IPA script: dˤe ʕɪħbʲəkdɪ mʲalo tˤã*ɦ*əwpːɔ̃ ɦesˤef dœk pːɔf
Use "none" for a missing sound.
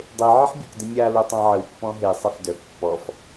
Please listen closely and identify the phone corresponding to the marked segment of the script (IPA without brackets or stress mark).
ʕ